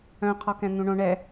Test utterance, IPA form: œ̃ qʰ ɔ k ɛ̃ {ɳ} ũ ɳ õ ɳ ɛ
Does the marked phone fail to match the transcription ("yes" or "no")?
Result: yes